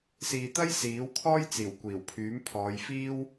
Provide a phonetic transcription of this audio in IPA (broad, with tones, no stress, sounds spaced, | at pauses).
s iː˨ t̪ ɐ˥ j s iː˨˥ w kʰ ɔː˥ j t͡s iː˨˩ w kʷ iː˨˩ w pʰ yː˨˥ m pʰ ɔː˨˧ j f iː˥ w